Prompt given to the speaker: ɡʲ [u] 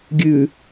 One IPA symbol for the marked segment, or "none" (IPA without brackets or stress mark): ʉ